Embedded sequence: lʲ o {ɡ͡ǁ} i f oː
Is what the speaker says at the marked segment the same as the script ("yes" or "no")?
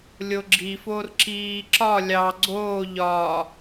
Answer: yes